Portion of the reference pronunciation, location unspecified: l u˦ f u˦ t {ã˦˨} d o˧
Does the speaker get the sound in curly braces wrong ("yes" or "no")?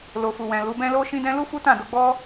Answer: no